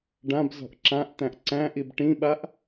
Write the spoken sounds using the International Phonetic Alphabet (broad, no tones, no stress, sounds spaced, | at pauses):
ɖ ã b z ɔ̤ ʔ ǁ ã ʔ t̪ æ̃ ʔ ǀ æ̃ ʔ i b ʈ ĩ ɓ a ʔ